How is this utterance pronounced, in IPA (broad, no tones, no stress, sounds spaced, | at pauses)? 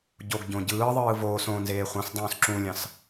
ɟ o ɡ ɟ õ ɟ ɯː ðˤ ɯː v oː s õ n z eː χʷ ɑ̃ s dˤ õː s ǁ ũ lʲ ɑ̃ s